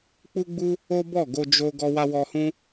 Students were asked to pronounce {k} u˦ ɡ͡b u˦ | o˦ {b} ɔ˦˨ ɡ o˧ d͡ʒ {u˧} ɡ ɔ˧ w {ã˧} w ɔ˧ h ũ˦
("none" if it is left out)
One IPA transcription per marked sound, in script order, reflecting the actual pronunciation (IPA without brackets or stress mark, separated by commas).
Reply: k͡p, b, o˧, a˧